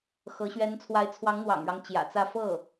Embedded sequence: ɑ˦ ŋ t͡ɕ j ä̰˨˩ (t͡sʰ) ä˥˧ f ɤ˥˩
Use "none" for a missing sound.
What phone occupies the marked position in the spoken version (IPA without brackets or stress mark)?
t͡s